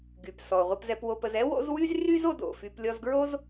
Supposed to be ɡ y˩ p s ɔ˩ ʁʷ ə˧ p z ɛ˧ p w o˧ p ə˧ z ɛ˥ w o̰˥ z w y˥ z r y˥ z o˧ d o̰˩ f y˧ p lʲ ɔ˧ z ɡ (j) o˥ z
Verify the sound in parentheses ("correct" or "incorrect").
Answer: incorrect